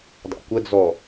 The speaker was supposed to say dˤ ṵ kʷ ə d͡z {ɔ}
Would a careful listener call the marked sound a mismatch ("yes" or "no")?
no